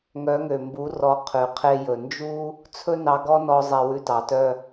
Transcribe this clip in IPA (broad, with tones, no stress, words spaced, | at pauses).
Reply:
ŋœ˨˦ŋø˨mbu˨˦rɔ˨˦ qʰʉ˨ qʰe˧jɵ˨ nd͡ʒu˦ | t͡sʰɵ˦nɑ˧ɡɔ˦nɔ˧ zˤɛ˧wʉ˧tɑ˨tœ˦